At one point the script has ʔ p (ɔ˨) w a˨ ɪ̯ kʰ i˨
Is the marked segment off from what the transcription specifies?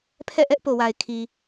yes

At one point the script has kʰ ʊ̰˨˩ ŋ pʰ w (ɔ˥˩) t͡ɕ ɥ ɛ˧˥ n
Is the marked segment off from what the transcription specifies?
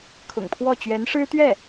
no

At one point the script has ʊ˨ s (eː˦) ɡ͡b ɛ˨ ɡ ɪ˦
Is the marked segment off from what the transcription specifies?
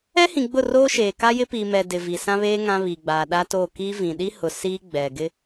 yes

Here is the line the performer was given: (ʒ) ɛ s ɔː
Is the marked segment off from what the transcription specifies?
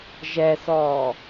no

